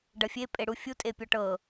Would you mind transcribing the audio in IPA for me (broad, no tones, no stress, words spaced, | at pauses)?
ɖɐfʲe pʼeɽufʲu tʼepʲɔʈɤ